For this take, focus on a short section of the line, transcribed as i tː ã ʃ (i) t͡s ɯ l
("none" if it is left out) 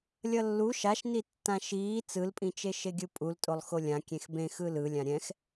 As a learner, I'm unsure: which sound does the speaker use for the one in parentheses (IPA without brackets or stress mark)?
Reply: iː